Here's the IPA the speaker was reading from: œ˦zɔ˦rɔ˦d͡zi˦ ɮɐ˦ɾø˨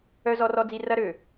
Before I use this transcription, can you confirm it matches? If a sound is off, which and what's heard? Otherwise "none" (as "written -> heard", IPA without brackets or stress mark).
ɮ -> r